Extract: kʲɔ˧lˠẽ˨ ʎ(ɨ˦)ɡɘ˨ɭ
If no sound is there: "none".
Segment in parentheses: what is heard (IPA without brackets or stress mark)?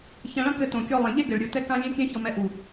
e˦